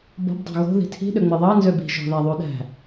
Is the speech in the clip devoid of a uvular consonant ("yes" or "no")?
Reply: yes